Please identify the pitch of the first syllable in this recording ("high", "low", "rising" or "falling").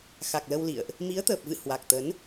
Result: low